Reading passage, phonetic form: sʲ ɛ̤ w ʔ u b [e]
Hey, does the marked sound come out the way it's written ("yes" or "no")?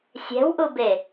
yes